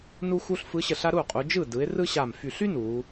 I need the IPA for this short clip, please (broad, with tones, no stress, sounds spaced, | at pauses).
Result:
n u˥ x u˥ ɬ f ɯ˧˥ ɕ ə˧˩ ɬ a˥ ɾ u˥˩ qʼ u˩˧ d͡ʒ ɯ˥˩ d ɯ˩˧ ɪ̯ r ɯ˥ ɕ a˧˩ m f y˧˩ ɬ y˥ n u˩˧